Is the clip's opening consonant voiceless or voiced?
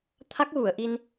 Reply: voiceless